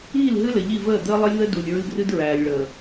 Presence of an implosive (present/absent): absent